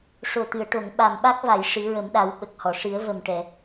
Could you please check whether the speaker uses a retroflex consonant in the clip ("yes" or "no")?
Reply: yes